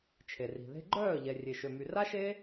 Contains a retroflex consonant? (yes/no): no